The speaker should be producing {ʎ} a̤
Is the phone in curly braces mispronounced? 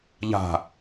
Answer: no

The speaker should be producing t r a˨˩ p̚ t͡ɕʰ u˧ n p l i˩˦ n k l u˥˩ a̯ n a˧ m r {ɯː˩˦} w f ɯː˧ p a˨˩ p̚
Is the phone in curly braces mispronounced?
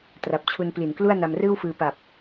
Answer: yes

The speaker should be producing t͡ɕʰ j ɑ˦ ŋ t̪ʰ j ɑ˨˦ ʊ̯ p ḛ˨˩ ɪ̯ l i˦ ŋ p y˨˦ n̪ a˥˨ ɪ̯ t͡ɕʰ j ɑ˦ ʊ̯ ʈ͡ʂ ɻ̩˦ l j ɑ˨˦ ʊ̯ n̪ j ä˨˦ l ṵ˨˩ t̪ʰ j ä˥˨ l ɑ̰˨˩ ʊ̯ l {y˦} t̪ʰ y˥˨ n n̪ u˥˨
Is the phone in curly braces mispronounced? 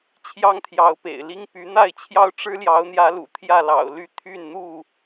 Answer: no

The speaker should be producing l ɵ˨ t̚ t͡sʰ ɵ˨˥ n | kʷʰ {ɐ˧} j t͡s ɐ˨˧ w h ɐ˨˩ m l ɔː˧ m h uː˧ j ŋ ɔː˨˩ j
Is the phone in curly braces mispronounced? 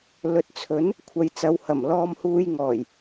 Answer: yes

